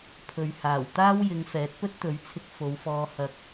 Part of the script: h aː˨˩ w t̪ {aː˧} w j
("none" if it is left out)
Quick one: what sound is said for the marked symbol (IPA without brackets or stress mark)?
aː˥